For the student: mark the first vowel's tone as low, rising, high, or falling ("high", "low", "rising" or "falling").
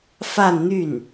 falling